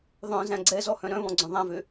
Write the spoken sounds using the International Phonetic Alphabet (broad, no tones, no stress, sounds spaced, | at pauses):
ðˤ œ̃ z æ̃ ɡ͡ǀ ɛ z ɔ h œ̃ ɾ œ̃ β ɔ̃ ɡ͡ǀ œ̃ ðˤ æ̃ v ø